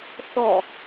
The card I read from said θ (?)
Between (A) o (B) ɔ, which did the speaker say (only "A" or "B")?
B